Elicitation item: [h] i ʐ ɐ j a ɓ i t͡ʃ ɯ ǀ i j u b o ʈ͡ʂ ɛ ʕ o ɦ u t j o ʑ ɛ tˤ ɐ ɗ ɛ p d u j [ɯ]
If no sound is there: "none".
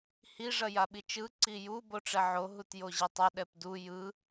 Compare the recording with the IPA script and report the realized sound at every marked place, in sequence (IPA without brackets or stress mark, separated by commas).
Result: h, ɯ